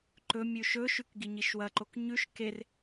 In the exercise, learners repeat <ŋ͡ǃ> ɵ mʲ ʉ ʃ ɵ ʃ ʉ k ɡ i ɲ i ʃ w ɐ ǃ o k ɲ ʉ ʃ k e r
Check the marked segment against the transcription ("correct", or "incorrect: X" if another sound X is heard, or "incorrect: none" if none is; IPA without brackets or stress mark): incorrect: ǃ